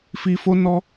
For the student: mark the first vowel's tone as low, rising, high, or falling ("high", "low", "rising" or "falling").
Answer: low